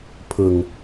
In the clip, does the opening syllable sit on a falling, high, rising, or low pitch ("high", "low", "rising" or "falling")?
low